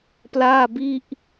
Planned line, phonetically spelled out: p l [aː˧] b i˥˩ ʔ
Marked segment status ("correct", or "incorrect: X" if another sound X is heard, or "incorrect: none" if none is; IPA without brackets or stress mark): incorrect: aː˥˩